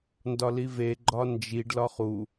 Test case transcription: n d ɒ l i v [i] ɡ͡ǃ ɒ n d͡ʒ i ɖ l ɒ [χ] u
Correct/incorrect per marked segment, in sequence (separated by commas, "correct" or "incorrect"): incorrect, correct